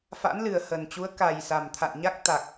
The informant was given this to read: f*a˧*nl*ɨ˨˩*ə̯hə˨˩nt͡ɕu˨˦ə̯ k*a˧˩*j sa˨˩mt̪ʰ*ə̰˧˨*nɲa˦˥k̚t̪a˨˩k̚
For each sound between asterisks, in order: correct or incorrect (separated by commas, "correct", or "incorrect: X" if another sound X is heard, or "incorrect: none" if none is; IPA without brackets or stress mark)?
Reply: incorrect: a̰˧˥, correct, incorrect: a˨˩, incorrect: a̰˧˨